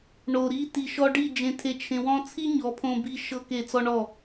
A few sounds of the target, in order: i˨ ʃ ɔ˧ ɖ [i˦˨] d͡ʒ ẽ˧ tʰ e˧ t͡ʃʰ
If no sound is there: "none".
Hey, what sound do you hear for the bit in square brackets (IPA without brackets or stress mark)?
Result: i˦˨